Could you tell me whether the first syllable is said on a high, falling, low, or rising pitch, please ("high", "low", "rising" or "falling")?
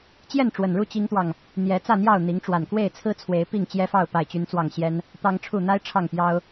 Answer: falling